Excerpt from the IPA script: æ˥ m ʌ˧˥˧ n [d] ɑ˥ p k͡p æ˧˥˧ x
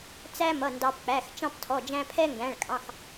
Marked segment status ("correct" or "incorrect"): correct